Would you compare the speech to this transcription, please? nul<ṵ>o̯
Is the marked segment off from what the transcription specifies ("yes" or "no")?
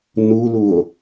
yes